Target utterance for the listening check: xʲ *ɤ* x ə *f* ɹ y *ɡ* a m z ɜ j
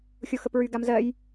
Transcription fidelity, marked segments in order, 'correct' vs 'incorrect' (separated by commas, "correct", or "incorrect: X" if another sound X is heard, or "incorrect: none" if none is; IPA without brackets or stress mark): incorrect: o, incorrect: p, correct